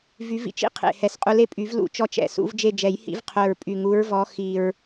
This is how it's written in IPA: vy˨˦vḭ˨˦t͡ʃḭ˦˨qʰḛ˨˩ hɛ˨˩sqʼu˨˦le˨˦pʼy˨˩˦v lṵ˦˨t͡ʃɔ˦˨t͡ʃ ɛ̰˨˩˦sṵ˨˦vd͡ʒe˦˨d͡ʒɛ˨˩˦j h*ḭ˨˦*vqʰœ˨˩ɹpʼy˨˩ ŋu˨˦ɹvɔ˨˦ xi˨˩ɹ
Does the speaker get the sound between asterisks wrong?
no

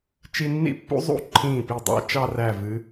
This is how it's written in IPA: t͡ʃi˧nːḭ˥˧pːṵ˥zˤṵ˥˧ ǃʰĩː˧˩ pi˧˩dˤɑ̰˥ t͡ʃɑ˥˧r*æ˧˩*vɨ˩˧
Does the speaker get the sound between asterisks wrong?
no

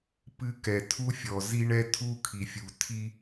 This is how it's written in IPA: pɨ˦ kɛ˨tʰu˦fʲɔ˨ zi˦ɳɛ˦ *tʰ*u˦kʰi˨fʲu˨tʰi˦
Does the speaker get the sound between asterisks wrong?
no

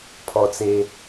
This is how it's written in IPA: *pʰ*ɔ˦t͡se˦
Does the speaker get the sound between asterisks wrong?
no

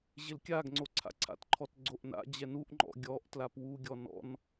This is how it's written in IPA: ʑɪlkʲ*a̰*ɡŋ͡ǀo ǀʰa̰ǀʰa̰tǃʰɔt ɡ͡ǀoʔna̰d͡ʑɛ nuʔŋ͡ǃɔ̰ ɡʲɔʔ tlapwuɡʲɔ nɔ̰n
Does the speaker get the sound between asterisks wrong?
yes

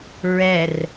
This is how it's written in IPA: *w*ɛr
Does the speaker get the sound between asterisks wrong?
yes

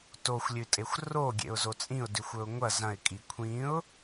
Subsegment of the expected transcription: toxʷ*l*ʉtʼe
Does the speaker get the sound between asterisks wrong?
yes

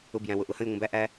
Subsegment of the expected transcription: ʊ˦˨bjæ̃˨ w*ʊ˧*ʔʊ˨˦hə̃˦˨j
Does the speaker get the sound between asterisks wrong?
yes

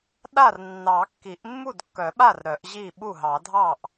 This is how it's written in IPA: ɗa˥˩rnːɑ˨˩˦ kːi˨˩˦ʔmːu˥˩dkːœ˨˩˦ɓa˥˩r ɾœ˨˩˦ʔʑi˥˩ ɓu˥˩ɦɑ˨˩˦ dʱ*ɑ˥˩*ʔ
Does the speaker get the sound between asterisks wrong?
no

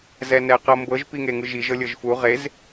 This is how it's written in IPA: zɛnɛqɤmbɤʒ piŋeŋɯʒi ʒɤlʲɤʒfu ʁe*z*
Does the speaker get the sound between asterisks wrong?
no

